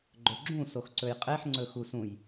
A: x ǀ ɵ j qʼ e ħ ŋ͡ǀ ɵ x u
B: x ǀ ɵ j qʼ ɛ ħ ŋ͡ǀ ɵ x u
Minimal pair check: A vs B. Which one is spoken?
A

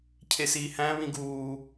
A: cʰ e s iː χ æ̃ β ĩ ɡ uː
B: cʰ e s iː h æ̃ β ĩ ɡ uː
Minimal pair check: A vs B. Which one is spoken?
B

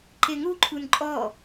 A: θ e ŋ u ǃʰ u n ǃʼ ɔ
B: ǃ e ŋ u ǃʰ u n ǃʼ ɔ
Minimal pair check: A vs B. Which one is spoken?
B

